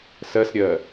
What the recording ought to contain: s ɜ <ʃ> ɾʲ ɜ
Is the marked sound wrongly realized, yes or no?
yes